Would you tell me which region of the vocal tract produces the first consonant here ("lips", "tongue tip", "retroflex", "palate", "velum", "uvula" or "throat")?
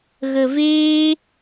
velum